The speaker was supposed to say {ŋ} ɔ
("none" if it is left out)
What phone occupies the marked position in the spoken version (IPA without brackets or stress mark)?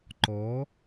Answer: ǃ